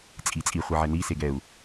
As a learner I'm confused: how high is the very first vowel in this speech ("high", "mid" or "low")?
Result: high